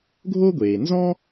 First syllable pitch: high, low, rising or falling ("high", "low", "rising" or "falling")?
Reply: high